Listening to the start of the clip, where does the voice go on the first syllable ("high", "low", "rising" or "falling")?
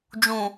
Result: low